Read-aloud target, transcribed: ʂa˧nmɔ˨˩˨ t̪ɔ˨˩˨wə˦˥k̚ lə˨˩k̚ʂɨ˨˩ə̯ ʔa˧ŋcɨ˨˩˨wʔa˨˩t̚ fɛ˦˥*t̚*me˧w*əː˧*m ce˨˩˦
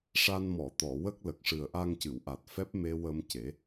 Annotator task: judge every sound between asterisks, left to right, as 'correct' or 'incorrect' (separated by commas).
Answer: incorrect, incorrect